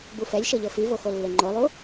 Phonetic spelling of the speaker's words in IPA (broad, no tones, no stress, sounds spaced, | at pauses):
b u f ɛ lʲ ʃ ɤ ʎ ɤ f i v o x o lː e ŋ͡ǃ o lˠ u